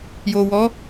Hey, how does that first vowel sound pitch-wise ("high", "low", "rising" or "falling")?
low